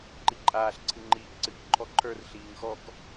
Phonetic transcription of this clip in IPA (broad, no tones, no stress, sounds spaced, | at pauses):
ǃ i ǃʼ aː ɬ ǀʰ ɨ ŋ͡ǃ iː ʔ ǀ ɨ k ǃʰ ɔ ǃʰ ə˞ r ɬ iː ŋ x ɔ k